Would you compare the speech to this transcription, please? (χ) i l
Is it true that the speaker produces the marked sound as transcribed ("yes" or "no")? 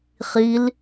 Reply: yes